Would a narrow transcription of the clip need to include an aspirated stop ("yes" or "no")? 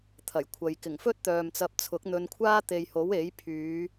yes